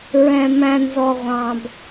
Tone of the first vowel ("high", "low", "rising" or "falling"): low